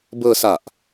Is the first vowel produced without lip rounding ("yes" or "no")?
yes